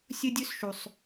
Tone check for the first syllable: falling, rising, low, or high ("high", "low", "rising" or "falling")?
high